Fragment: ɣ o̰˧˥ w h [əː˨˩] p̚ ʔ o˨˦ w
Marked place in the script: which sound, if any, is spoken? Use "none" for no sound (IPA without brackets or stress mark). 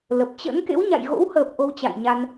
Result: əː˨˩